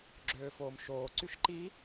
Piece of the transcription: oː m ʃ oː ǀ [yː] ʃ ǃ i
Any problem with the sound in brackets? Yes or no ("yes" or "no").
yes